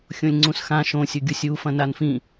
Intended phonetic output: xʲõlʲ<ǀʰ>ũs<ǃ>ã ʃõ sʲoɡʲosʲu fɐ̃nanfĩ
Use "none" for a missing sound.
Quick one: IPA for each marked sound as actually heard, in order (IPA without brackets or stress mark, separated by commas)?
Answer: ŋ͡ǀ, x